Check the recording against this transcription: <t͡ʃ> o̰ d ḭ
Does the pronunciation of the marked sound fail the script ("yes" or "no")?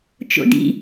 no